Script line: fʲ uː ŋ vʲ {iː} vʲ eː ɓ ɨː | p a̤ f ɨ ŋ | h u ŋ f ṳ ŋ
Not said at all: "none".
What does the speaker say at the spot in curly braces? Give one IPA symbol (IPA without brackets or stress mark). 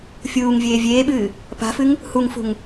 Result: eː